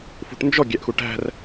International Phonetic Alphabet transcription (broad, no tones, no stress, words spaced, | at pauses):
fṳʈnd͡ʒɔ ɡʲæʔxuʈæ̤r